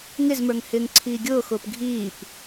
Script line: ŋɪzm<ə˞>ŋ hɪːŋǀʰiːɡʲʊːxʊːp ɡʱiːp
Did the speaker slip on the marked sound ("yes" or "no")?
no